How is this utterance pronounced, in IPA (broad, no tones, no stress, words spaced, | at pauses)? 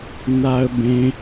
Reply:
naə̯bẽ